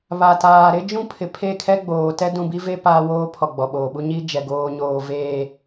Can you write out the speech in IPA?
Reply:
βa˨taː˨ɾɪ˦ d͡ʒũ˦pʰɪ˨ pʰe˦˨kʰɛ˦ ɡ͡boː˨ tɛ˦dũ˨bi˦ve˦ paː˦woː˦pʰɔ˨ ɡ͡bɔ˨ɓoː˨ɓu˦ ɲi˦d͡ʒɛ˨ ɡoː˨ɲoː˨ veː˨

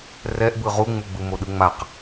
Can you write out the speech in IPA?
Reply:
rɛʔbɯ ʁuŋ͡muɡ͡bɯ moɗɯŋ͡maq

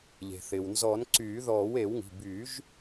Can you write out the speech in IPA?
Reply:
ʎe̤˩θɪː˩wnzɔ˨˩˦n ǀyː˨˩˦ðɔː˨˩˦we˨˩˦wŋi̤˩˧˩ by˨˩˦ʒ

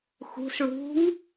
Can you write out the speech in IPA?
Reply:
xṳs ɭṳŋ

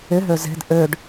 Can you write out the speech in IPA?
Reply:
ɪɦø ze̤d ʔøɖ

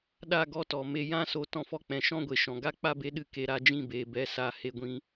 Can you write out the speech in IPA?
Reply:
ɗa˦˨ɡɔ˧tɔ˨ me˨ jã˦so˧ tɔ̃˧fɔ˧k͡pɛ̃˨ ʃɔ̃˦ɡʷe˨ʃɔ̃˨ ɡa˦k͡pa˦be˦ɗɨ˧ ke˧ɾa˧ d͡ʒĩ˦˨ beː˨bɛ˨˦ sa˧ he˧ɡʷĩ˧

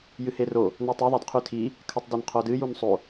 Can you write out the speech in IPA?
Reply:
jɨhero | nɵtˤi ðˤadqʰʉtʰi | kʰɐtˤdɐnqʰodɨ junsˤo

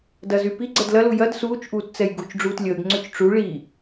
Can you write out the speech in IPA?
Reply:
dɐzy piɡ͡ǀɛd lɐlu jɐd suːt͡ʃʔuːtt͡sɛj ɡut͡ʃɖ͡ʐuːt lʲəːɡŋ͡ǀøt͡ʃ ʈ͡ʂu ɭi

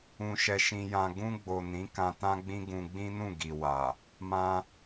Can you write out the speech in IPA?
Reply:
ũ˧ʃɛ˧ʃĩ˧jã˧ ɡũ˧ɡ͡bo˨ nĩ˨˦ kã˧tã˦ɡ͡bĩ˦ ɡũ˧ɡ͡bĩ˦nũ˦˨ ɡi˨wa˨ | mã˧

